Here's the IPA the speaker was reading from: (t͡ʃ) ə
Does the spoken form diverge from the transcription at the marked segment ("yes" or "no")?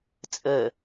yes